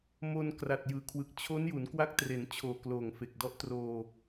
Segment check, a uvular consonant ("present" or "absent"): absent